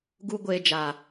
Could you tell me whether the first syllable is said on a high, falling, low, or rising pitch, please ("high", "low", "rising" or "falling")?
high